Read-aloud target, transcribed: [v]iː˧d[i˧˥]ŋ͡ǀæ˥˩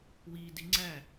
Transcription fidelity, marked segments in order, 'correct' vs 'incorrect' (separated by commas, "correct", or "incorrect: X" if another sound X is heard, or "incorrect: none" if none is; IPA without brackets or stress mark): incorrect: w, correct